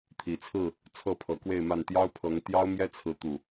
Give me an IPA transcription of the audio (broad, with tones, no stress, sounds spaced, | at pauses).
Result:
t̪ʰ i˨˦ t͡sʰ ɹ̩˥˨ | t͡sʰ ɤ˥˨ pʰ ɤ˨˦ k w e˥˨ ɪ̯ m a˥˨ n t̪ j ɑ˦ ʊ̯ pʰ ɤ˨˦ ŋ t̪ j ɑ˦ ʊ̯ m j ɛ˦ t͡sʰ ɹ̩˨˦ t̪ u˨˩